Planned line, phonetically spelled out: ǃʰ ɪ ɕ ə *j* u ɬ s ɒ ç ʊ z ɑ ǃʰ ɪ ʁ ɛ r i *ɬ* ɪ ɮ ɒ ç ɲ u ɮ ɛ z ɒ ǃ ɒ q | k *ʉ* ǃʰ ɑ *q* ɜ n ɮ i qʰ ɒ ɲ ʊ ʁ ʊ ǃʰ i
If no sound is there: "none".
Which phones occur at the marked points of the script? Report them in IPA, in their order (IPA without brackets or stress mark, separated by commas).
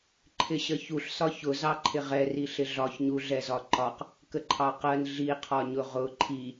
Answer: ç, ɬ, ə, q